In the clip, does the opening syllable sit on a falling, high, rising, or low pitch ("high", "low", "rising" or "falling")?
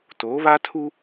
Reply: rising